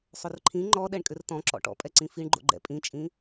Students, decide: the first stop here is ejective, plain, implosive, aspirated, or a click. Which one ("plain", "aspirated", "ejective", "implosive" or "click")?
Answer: click